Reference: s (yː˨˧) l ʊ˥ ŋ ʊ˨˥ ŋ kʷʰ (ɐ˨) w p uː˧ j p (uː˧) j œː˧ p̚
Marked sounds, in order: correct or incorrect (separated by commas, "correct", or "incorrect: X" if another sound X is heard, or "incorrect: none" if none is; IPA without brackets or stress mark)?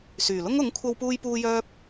incorrect: yː˨˩, incorrect: ɐ˧, correct